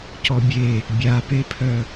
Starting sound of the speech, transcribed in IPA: c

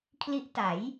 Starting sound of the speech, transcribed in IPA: kʰ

